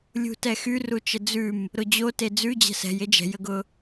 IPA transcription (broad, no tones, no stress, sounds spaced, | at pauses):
lʲ ṳ t ɛ x y r u t͡ʃ ə d͡z ʉ m | ɾ ʊ d͡ʑ o t e d͡z ʉ d͡ʑ ɛ̤ s ɛ̤ j e d͡ʒ ɛ̤ j ə ɡ ʊ